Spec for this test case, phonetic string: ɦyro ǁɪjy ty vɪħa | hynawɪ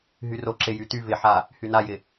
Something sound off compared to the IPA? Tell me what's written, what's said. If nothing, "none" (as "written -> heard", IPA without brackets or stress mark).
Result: w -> j